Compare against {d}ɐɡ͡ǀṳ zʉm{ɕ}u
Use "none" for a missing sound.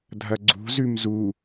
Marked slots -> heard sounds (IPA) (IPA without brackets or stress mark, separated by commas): dʱ, z